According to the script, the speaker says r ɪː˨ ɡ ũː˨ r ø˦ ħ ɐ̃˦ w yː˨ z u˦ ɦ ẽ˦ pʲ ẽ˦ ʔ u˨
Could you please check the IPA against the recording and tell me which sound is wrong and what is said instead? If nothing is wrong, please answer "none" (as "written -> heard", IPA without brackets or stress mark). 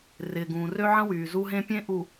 ħ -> ʕ